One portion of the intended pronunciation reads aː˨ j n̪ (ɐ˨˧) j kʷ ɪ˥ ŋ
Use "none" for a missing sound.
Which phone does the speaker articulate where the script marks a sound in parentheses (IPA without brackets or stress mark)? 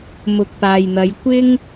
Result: ɐ˨˧